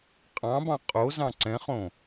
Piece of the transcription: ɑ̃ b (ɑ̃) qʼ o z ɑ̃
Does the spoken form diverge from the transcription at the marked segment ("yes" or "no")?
no